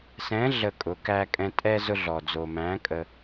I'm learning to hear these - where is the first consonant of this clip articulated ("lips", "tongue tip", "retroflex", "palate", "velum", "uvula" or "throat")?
tongue tip